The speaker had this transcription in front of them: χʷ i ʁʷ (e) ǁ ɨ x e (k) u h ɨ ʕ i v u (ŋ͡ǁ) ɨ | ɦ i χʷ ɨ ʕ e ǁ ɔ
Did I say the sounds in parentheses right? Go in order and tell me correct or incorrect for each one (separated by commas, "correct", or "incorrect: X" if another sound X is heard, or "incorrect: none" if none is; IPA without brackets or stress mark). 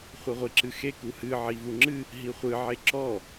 incorrect: i, correct, correct